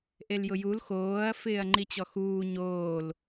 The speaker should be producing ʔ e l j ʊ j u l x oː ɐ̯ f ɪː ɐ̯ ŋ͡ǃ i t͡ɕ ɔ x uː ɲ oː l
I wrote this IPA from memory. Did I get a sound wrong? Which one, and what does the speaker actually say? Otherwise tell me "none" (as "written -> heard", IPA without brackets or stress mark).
none